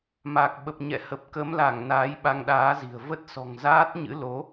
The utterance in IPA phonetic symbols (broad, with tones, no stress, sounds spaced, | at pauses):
m a˨˩ k̚ ɓ ə˨˩ p̚ ɲ ɛ̰˧˨ h ə˨˩ p̚ k ə˨˦ m l a˧˩ ŋ n aː˨˦ j ɓ a˧ ŋ ɗ aː˨˦ z i̤˨˩ ə̯ v ə˦˥ t̚ s ɔ̤˨˩ ŋ z aː˦˥ t̚ ɲ ɨ̰˧˥ l o˨˦